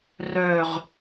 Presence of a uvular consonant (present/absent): present